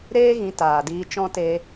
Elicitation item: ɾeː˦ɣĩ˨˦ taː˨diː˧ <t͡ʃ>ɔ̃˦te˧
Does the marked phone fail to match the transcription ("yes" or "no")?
no